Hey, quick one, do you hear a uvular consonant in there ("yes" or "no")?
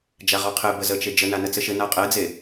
yes